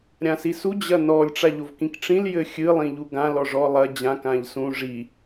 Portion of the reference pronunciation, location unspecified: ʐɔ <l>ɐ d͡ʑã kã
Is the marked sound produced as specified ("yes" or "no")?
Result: no